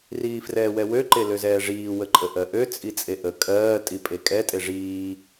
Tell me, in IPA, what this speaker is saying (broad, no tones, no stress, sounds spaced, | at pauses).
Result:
r iː f r ɛː w ɛ w ø ǃ e l ø z ɛː ʐ iː w ə ǃʼ ə ʔ ɜ ʔ ø t͡sʼ i t͡sʼ e ʔ ə kʼ ɜː tʼ i pʼ e kʼ ɛ tʼ e ʐ iː